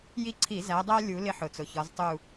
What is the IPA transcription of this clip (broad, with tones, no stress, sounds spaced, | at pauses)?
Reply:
j i˦˨ ǀʰ i˧˩˧ z æ˨˦ dˤ æ˦ lʲ u˨˦ l ɪ˦ ħ ʊ˨˩ t͡s ʊ˨˩ ç ɒ˨˦ z tˤ u˦˨